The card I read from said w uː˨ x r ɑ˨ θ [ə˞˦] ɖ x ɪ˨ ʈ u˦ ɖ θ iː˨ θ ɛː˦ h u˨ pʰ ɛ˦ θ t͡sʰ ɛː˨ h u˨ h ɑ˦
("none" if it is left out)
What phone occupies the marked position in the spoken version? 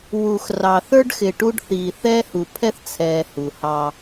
ə˞˦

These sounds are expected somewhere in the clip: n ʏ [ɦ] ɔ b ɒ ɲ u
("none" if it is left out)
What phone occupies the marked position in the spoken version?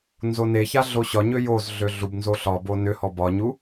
h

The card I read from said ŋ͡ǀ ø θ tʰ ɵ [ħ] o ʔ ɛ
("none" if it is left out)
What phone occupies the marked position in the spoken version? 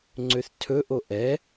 ʔ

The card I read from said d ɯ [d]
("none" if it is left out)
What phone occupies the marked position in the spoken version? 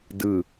none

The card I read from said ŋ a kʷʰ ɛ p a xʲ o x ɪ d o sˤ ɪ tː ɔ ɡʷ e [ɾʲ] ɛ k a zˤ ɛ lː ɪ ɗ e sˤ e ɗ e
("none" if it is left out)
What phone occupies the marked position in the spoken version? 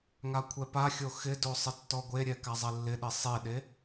ɾʲ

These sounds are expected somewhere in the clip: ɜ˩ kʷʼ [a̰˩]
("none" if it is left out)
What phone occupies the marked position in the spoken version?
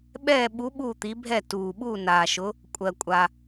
a˩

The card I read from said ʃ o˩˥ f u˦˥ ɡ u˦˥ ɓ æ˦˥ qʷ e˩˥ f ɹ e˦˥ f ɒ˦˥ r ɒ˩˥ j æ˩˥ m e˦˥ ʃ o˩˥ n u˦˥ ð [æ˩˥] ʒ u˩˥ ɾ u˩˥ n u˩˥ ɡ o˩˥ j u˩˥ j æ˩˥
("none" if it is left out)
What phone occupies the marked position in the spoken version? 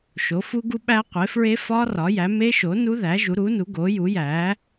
æ˩˥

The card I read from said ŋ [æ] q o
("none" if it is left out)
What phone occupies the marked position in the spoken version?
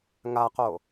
a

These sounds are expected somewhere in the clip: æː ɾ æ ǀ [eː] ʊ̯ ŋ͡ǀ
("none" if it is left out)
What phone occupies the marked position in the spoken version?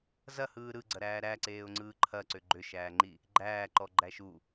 eː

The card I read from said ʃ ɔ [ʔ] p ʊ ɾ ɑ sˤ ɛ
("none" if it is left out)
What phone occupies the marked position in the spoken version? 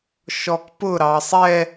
k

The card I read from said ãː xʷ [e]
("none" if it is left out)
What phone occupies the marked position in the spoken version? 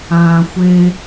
e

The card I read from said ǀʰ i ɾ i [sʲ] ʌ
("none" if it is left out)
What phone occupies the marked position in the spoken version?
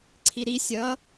sʲ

